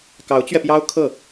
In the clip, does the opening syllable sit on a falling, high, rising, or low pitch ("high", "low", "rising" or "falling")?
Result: rising